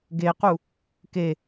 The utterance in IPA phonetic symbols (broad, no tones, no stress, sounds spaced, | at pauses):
ɡ e q u | k e